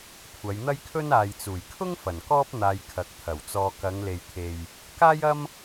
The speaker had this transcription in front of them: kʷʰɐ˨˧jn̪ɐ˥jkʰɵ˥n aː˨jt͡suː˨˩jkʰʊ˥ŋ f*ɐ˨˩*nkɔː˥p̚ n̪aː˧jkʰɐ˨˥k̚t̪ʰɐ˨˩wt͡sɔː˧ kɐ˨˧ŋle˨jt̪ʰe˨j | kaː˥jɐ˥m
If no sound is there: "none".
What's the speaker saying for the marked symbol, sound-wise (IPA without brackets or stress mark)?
ɐ˨˩